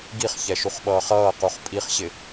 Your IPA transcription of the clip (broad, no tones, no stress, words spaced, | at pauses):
ɡiχçɛʃuχɓʌːχ ʌːquχ pʼiχɕɪ